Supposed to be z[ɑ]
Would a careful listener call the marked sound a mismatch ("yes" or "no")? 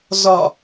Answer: yes